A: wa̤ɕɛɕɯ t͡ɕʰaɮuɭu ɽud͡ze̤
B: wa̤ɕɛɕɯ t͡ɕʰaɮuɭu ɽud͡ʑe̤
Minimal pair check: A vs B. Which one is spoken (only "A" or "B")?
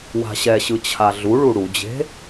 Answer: B